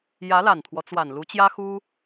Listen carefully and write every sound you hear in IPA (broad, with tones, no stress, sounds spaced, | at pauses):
j ä˧˥ l a˨˩ n t̪ʰ w ɔ˦ t͡s w a˨˩ n l u˧˥ t͡ɕ j ä˥ x u˥